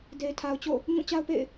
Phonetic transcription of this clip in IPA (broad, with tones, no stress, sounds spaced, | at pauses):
d e˨ ɪ̯ tʰ a˨ ʊ̯ t͡ɕ o̰˦˨ | ɲ ũ˦˨ t͡ɕ a˦ ʊ̯ p ḛ˦˨ ɪ̯